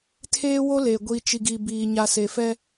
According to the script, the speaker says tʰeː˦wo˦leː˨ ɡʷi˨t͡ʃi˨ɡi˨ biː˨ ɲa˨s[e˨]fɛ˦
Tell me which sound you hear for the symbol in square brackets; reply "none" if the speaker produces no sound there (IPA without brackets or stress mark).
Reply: e˨